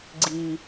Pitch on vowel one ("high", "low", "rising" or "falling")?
low